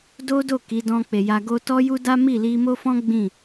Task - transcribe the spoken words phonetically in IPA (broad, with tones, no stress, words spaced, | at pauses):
do˦do˦˨ ki˨˦ dɔ̃˧k͡pe˨ ja˧ɡo˦ tɔ˦ju˦da˦ mi˦˨li˧mo˦ fɔ̃˦ ɡ͡bĩ˦˨